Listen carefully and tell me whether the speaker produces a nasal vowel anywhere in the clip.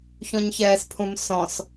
yes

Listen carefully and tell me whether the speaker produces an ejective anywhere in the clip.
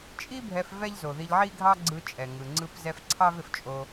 yes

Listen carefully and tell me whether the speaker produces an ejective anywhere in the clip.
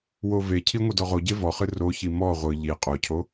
yes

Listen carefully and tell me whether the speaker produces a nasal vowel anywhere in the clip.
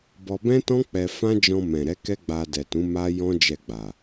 yes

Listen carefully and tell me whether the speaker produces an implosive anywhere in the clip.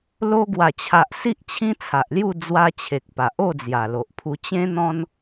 no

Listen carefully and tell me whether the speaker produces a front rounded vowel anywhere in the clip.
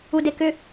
yes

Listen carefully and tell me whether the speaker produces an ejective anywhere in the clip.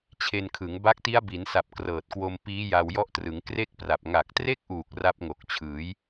no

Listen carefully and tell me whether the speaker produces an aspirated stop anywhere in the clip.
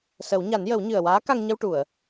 no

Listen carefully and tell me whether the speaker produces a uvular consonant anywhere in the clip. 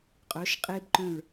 yes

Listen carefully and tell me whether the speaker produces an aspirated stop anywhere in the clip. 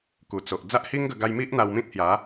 no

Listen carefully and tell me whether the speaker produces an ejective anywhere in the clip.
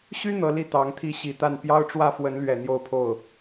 no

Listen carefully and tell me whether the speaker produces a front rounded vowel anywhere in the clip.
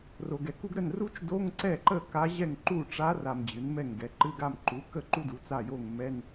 no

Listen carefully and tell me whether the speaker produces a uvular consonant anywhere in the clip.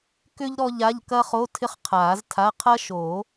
yes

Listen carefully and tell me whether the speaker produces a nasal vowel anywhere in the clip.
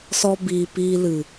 no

